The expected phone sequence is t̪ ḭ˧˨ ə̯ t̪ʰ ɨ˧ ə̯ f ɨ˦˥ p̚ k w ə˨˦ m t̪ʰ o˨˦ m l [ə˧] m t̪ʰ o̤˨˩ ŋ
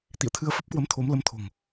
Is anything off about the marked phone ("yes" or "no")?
no